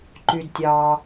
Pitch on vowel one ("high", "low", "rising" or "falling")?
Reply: low